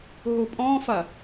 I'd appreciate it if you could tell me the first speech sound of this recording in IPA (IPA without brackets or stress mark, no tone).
ɦ